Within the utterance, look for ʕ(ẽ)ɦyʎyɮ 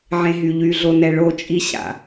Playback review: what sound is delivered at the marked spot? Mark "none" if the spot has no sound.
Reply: ẽ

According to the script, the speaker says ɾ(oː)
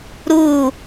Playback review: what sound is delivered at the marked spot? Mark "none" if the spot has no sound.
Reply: uː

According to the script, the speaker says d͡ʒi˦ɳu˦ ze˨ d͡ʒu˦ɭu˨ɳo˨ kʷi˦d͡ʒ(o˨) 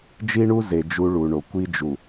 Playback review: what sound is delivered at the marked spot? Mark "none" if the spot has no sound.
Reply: u˨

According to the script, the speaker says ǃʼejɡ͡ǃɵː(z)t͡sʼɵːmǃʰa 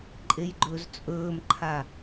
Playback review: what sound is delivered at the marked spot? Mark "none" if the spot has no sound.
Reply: z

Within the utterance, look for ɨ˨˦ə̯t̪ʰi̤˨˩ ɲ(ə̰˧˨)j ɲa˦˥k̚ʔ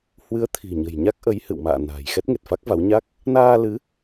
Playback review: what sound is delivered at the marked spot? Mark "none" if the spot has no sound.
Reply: ə̤˨˩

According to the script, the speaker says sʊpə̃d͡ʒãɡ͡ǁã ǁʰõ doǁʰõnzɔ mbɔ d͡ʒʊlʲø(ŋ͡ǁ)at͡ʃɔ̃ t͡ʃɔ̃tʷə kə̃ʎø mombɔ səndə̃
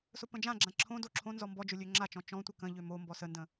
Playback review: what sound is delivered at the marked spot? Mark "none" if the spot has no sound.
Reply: ŋ͡ǁ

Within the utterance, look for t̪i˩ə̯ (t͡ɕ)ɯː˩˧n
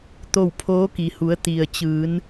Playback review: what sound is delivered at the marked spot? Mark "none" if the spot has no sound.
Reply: t͡ɕ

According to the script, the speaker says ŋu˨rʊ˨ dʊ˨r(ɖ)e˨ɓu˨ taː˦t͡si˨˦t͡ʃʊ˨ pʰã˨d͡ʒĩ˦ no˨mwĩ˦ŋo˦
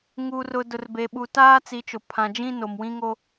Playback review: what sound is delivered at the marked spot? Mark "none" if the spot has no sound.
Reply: b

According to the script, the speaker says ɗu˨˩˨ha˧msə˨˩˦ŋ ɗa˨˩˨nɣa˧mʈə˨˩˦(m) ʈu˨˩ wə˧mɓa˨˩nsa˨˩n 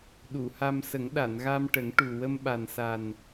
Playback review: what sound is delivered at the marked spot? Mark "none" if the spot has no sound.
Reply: ŋ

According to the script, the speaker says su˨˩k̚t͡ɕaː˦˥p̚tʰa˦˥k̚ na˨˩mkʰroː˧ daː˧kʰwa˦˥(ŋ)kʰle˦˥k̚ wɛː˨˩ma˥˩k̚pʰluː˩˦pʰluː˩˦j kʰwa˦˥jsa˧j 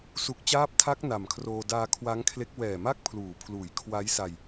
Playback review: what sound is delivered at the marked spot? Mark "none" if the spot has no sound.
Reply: ŋ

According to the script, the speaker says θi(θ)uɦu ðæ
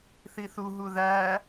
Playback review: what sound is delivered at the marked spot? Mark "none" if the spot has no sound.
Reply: θ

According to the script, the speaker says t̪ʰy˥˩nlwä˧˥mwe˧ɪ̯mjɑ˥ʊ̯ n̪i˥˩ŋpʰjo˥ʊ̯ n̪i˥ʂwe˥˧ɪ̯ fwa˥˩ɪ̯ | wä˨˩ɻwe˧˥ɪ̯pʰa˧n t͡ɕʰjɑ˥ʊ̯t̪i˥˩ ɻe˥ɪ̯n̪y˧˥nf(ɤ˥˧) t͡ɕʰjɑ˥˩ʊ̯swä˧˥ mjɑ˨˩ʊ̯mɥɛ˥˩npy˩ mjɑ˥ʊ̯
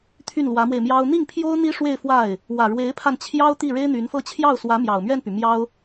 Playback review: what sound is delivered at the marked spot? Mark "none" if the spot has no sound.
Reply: ɤ˥˧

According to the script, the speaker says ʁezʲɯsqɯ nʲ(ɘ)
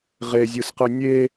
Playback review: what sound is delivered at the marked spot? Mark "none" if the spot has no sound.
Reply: e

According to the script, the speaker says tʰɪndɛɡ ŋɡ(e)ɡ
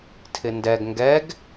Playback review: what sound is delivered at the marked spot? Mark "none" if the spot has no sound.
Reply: ɛ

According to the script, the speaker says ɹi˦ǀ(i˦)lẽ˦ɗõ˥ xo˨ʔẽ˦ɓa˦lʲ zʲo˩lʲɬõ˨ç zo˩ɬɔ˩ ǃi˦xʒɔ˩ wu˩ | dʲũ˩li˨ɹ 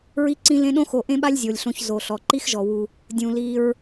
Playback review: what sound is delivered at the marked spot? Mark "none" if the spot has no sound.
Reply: ĩ˦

